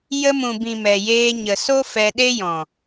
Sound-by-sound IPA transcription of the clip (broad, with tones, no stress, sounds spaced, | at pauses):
j ə˧ m ũ˨ b ĩ˨ m ɛ˨ j eː˧ ɲ ə˨ s o˦ f ɛ˧ ɗ e˦ j ɔ̃˨